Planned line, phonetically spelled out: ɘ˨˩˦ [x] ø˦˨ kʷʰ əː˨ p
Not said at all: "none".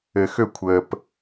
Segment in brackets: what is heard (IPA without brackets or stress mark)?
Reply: x